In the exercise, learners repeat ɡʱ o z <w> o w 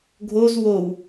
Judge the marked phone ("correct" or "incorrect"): correct